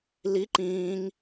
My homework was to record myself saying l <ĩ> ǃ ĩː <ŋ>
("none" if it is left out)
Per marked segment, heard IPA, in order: i, ŋ

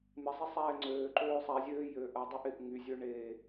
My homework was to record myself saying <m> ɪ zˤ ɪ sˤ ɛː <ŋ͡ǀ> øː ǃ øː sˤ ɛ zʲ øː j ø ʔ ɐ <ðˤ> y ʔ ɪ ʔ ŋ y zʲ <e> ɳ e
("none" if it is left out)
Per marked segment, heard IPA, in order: m, ŋ͡ǀ, dˤ, ø

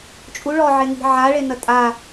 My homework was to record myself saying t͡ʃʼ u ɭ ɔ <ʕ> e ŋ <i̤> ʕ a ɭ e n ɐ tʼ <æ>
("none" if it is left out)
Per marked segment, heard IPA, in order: ʕ, i̤, a

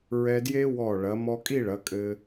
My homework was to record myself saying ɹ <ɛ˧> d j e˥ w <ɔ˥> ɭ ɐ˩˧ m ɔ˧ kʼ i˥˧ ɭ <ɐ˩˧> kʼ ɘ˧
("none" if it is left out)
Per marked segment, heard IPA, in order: ɛ˧, ɔ˧˩, ɐ˩˧

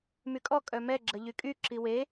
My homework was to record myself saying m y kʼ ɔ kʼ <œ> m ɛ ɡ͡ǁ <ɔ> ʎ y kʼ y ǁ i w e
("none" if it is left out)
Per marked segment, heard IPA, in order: œ, ə

